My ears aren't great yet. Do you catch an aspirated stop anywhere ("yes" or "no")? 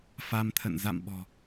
yes